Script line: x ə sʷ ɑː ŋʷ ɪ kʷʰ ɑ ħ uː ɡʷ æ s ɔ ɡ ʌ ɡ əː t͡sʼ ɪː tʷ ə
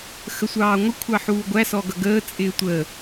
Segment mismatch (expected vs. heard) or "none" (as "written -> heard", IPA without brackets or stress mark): none